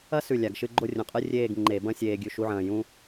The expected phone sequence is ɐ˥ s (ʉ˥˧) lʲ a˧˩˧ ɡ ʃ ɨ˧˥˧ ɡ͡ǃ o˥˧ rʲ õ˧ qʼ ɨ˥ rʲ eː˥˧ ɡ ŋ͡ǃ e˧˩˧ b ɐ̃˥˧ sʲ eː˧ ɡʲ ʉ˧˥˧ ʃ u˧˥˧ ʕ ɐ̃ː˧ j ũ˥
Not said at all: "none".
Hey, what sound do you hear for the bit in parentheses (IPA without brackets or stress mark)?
ʉ˧˩